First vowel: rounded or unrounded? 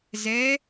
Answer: unrounded